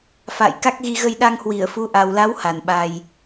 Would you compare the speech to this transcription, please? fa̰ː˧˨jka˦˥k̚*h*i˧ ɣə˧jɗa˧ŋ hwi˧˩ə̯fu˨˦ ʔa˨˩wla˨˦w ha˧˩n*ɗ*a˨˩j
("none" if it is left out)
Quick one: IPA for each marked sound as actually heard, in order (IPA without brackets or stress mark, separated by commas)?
ɣ, ɓ